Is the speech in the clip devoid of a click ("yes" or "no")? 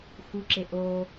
no